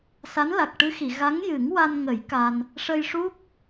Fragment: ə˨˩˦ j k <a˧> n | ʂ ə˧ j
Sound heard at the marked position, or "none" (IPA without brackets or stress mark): a˧